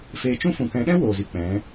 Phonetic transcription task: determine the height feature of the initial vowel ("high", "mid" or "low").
mid